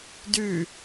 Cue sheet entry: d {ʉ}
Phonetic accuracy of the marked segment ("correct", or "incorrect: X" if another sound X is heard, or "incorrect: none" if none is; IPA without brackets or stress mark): correct